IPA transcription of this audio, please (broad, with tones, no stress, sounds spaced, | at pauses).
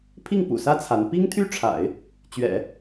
pʰ i˥˩ ŋ p ṵ˨˩ s ä˥ t͡sʰ a˧˥ n p i˥ ŋ t̪ʰ y˥ ʈ͡ʂʰ a̰˨˩˦ ɪ̯ | t͡ɕ ɥ ɛ̰˨˩˦